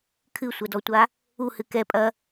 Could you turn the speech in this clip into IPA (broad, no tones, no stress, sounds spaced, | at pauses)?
kʰ ɨ sʷ ɐ d ɔ tʷ a | u h ɨ k ɛ pʼ ɐ